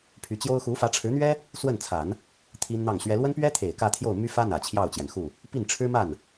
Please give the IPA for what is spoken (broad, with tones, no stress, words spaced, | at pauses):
pʰy˧˥t͡ɕjo˥ʊ̯ xu˧˥fä˧˥ʈ͡ʂʰɻ̩˧˥n̪ɥɛ˥ | swə˥˩nt͡sʰa˨˩˦n | t̪ʰi˥nn̪ɑ˥˩ŋɕɥɛ˥ lwə˥npɥɛ˥t̪ʰe˨˩ɪ̯ kä˥˧t̪ʰjo˥˩ʊ̯my˥fä˥ n̪ä˨˩t͡ɕʰjɑ˥˩ʊ̯t͡ɕjɛ˩nxu˥˩ | pi˥˩nʈ͡ʂʰɻ̩˥ma˥˩n